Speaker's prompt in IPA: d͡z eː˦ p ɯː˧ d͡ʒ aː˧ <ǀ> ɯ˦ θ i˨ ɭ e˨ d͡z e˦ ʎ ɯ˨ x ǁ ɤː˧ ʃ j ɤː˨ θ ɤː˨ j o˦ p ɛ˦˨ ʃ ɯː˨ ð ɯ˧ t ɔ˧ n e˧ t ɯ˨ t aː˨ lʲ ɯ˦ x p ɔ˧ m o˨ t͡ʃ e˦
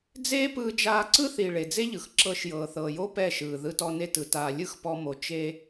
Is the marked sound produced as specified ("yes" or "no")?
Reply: yes